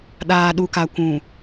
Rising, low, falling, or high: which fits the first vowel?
low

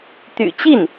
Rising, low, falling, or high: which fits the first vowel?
low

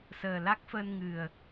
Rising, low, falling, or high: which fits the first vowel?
low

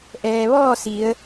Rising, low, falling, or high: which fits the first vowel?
low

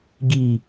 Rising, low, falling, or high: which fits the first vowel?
falling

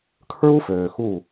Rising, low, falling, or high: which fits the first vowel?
high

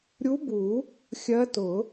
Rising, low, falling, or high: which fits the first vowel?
rising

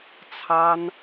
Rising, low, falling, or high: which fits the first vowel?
high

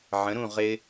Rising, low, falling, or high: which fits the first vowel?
rising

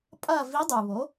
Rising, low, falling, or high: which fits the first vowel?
falling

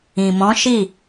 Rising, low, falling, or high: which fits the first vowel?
low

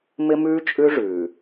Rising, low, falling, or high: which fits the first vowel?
high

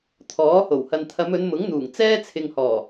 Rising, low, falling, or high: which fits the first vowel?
rising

